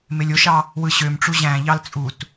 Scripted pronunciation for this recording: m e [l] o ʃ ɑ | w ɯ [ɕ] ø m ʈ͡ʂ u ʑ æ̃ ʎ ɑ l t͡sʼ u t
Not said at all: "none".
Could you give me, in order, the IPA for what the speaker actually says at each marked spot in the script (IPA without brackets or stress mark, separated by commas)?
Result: lʲ, ɕ